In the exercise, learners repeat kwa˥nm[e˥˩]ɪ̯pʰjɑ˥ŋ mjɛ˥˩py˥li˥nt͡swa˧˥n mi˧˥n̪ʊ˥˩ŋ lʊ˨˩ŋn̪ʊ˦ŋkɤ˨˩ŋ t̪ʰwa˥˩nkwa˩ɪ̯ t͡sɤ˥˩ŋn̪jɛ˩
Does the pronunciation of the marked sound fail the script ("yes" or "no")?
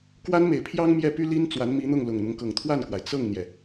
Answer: yes